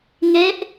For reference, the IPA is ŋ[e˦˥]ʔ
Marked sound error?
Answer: no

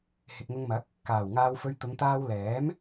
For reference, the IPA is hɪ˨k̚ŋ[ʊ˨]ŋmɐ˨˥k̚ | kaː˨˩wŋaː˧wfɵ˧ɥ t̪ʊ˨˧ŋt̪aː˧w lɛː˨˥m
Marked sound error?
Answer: yes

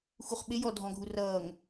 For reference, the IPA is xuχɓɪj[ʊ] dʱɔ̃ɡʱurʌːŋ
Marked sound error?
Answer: yes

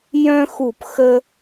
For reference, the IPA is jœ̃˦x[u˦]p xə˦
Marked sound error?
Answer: yes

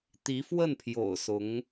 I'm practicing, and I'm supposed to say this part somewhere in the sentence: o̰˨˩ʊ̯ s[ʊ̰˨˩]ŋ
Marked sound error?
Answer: yes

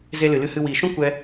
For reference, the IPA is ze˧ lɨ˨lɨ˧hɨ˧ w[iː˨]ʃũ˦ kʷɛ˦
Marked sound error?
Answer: no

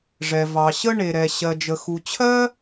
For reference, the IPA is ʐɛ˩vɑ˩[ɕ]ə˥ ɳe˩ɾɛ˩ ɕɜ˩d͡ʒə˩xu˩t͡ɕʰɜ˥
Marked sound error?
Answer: no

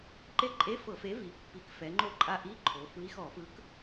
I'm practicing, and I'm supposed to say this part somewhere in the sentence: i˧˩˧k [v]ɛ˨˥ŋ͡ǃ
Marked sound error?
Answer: yes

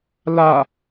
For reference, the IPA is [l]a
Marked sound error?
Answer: no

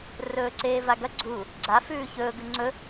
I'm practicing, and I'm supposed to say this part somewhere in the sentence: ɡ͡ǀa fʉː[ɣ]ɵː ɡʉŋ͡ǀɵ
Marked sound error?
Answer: yes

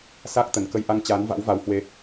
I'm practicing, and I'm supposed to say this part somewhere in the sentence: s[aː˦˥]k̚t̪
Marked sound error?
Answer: no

